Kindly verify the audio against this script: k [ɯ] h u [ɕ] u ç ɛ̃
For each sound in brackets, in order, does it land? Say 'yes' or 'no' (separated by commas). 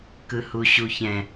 yes, yes